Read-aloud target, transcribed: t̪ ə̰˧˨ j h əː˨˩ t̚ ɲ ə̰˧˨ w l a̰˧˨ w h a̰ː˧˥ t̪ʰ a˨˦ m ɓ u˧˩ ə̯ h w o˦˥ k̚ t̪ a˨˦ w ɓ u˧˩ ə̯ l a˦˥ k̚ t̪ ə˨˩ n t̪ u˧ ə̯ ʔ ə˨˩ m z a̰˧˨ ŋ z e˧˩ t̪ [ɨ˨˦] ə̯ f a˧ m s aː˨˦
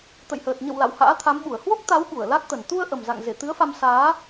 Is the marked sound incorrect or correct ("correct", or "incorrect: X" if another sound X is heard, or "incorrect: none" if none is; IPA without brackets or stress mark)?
correct